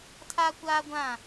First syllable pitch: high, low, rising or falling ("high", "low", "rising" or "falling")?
high